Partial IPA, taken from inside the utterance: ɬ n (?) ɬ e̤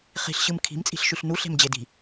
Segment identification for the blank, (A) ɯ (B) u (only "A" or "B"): B